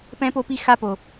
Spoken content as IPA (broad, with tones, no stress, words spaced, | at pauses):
pɛ̃˦po˦pi˦ xa˦po˨